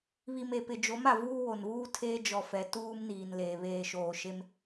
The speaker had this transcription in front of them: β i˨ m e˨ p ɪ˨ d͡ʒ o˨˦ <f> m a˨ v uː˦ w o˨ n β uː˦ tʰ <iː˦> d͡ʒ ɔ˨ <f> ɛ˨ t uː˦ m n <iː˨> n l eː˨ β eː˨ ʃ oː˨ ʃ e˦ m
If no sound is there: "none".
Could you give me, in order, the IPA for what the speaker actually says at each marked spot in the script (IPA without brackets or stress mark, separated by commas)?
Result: none, eː˦, f, iː˨